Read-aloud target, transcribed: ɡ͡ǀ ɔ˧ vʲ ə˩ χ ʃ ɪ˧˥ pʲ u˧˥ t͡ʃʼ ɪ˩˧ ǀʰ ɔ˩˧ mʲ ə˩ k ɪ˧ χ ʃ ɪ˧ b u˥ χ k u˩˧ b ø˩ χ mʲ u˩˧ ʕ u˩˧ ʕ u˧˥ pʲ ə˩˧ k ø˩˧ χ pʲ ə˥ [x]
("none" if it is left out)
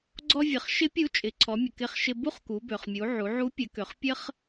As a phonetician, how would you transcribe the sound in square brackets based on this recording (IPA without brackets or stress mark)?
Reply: χ